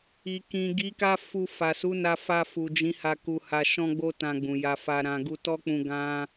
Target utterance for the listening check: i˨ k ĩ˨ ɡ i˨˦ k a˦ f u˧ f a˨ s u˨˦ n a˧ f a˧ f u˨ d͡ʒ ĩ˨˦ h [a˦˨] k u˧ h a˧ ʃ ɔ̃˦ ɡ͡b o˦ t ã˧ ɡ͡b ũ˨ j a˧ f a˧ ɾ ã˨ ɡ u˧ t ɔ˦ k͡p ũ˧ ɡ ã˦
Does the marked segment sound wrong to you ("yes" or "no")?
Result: yes